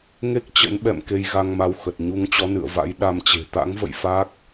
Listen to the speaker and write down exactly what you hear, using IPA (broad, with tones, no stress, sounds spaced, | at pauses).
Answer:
ŋ e˦˥ k̚ t͡ɕ ə̰˧˥ n ɓ ɛ̰˧˨ m k e˧ j ɣ a˧ ŋ m a˧ w x ə˨˩ t̚ ɲ u˧ ŋ t͡ɕ ɔ˨˦ n ɨ̰˧˨ ə̯ v a̰˧˥ j ɗ a˧ m t͡ɕ e̤˨˩ t̪ a̰˧˥ ŋ v ə̰˧˨ j f a˦˥ k̚